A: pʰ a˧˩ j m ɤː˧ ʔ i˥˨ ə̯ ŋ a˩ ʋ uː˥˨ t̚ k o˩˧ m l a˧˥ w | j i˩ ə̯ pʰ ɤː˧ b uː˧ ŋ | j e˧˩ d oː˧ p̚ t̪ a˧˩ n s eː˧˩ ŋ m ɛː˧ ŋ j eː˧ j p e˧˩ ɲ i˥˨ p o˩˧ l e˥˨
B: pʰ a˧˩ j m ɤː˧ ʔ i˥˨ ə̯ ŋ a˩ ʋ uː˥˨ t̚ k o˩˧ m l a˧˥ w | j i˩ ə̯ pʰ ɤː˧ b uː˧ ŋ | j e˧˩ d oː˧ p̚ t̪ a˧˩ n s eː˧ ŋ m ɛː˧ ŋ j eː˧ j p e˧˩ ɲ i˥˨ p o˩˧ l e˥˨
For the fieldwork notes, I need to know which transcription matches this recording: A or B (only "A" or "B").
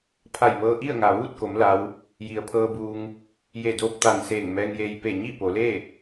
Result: A